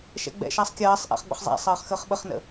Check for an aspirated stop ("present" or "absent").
absent